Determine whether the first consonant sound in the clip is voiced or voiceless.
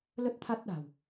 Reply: voiced